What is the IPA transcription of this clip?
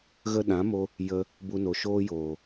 ɣ ə˧ ɗ ã˨˦ m o˧ | j ə˧ | b u˧ n o˨ ʃ oː˦ j oː˨

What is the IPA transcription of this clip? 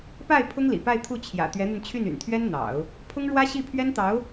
p a˥˩ ɪ̯ pʰ ʊ˥ ŋ l ḭ˨˩ p a˥˧ ɪ̯ t̪ʰ u˥˩ t͡ɕʰ j ä̰˨˩ t̪ ɥ ɛ˧˥ n̪ y˧ n t͡ɕʰ y˥˩ n y̰˨˩ n t̪ʰ ɥ ɛ˥ n n̪ ɑ̰˨˩˦ ʊ̯ | pʰ ʊ˥ ŋ ɻ w ä˥ ɕ i˥˩ pʰ ɥ ɛ˥ n t̪ ɑ˧˥ ʊ̯

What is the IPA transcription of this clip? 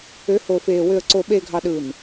ø˨˦ h o˨ f eː˨ w ø˨ ə̯ ǀ o˨ ɓ eː˨ ɡʱ ɑ˨ ɗ ɯ˨ n

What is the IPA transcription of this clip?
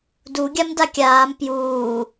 d u ɡʲ a m d a kʲ aː m p j uː

